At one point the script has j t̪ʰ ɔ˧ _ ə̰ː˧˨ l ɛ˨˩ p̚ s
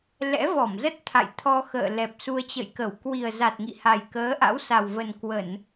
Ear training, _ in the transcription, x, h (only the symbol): x